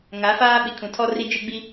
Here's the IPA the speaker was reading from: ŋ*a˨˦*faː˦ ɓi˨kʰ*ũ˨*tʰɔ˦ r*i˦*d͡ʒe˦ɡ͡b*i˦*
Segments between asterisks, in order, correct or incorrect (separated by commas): correct, correct, correct, correct